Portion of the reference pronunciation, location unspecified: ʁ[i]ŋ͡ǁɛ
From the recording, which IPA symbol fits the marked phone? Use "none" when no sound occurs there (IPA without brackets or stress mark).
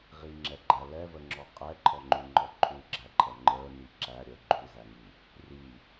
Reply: i